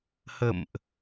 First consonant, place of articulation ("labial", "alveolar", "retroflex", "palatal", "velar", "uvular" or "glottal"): glottal